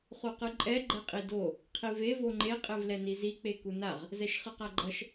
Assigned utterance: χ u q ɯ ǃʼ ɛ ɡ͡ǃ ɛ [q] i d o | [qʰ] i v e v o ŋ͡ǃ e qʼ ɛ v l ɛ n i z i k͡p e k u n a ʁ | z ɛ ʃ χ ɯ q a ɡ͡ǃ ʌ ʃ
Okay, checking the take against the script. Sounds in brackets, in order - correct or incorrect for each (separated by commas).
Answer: incorrect, correct